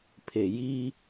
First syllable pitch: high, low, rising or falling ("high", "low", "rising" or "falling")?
low